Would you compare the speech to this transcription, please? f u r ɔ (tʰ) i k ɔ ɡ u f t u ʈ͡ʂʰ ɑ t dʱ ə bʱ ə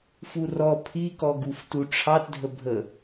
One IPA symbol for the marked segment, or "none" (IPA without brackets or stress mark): pʰ